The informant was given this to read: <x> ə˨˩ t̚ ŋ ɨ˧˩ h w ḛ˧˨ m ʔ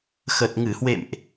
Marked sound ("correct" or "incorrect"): correct